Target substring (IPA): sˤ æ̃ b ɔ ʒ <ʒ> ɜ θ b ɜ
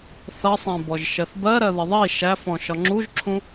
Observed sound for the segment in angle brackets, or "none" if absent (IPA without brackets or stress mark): ʃ